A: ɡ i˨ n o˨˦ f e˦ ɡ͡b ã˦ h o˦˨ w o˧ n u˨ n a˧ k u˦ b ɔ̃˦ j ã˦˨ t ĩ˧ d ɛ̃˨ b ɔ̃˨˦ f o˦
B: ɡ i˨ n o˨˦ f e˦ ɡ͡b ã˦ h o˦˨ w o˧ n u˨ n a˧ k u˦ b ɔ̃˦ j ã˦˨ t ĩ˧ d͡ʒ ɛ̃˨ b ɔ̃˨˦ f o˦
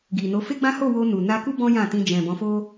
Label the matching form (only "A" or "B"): B